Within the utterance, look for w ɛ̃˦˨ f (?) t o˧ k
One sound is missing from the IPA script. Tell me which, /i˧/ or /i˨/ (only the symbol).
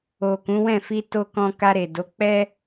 i˧